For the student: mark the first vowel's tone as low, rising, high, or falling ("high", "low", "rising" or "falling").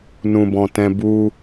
low